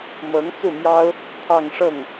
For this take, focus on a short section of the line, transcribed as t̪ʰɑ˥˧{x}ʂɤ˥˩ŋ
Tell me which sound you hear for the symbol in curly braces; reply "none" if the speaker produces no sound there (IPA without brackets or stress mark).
ŋ